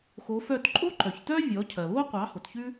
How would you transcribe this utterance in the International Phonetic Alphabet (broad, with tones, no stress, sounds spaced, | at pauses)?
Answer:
x o˩˥ f œ˥˩ t ǃʼ o˥ ǃ œ˩ ç t œ˥ vʲ ɔ˩˥ cʰ ɜ˩ β o˥ qʷ ɑ˩˥ h o˩ t ç ʉ˥